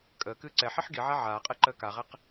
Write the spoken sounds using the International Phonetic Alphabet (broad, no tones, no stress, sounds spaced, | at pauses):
kʼ əː k ɨː ǀ ɛ ħ i ħ ɡ i ʕ a ʕ aː qʼ ɛ ǃ əː k a ʁ ɛ q